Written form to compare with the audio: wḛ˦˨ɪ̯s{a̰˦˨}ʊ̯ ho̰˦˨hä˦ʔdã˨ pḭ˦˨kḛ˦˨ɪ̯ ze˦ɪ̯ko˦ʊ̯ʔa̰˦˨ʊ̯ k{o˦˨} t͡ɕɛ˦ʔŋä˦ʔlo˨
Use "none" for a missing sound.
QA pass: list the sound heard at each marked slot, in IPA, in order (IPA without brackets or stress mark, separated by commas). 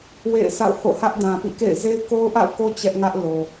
a̰˦˨, o˦